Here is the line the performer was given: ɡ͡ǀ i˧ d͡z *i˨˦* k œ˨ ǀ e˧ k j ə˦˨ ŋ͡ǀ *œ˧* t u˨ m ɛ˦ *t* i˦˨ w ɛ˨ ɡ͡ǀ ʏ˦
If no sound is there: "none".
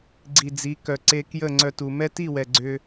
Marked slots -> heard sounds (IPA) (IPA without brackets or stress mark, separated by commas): i˨˦, œ˧, t